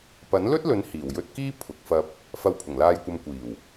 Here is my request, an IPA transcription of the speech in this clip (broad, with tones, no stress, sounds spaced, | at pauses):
p ɐ˨˥ n l ɵ˥ t̚ l ɵ˨˥ n h iː˨˩ w j ɵ˧ t̚ k iː˥ pʰ ʊ˨ k̚ f ɐ˧ p̚ | f ɐ˧ w pʰ ʊ˨˩ ŋ l aː˧ j kʷ ɐ˧ m kʷ iː˨˩ w